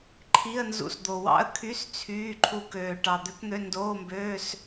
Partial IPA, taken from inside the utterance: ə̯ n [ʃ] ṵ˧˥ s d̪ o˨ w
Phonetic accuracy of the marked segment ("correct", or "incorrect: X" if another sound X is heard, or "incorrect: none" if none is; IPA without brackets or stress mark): incorrect: z